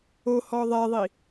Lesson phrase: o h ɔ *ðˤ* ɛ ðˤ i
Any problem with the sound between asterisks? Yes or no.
no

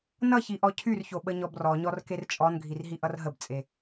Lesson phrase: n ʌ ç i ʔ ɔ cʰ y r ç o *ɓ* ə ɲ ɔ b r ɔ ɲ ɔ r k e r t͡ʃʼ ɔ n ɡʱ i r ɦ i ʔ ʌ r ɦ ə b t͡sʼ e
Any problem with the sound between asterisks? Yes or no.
no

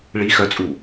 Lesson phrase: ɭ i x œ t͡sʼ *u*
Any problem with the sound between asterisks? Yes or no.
no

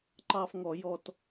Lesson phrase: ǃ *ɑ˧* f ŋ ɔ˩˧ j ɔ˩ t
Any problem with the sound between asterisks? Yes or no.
no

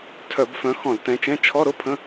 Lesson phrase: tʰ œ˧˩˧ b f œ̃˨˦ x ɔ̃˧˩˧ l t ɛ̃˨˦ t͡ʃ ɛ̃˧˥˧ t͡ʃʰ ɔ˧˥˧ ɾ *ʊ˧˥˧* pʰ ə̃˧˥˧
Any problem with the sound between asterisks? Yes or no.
no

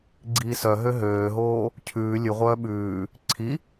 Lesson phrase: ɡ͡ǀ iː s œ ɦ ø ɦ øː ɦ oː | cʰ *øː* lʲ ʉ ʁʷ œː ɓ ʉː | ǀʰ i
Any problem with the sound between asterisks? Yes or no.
yes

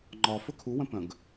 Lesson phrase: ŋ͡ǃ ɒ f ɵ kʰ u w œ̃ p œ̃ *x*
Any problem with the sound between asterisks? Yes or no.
yes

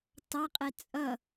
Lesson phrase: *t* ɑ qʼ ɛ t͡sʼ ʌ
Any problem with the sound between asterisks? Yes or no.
no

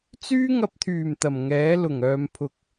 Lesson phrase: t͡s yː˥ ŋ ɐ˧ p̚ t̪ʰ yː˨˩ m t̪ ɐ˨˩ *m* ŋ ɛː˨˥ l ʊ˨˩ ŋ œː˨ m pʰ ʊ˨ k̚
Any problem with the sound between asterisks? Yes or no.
no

